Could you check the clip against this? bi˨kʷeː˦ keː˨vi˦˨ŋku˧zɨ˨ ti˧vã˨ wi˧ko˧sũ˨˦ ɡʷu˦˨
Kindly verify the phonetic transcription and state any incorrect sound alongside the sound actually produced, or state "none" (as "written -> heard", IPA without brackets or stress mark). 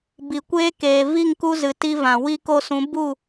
ɡʷ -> b